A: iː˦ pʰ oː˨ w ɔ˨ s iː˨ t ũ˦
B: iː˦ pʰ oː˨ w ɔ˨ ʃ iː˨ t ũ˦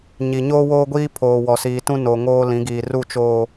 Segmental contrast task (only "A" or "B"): A